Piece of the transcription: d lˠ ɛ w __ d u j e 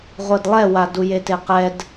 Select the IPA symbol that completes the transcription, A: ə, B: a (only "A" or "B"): B